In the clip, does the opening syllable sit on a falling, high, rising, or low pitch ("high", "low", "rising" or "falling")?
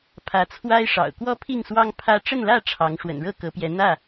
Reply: rising